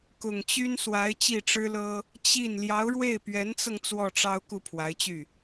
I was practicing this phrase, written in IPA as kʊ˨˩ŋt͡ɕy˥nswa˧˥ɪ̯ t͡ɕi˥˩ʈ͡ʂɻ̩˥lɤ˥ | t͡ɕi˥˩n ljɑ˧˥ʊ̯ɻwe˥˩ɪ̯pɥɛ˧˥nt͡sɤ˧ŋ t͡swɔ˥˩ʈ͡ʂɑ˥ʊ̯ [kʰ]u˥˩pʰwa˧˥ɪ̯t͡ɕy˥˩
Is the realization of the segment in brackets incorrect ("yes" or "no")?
yes